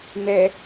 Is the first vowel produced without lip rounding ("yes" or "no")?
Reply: yes